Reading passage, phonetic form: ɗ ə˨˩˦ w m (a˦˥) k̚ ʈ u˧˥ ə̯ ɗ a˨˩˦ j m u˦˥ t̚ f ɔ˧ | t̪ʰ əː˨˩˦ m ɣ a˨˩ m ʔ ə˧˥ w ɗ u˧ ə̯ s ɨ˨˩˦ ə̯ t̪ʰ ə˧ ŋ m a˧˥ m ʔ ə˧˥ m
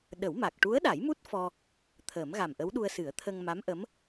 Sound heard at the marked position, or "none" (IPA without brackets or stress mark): a˨˩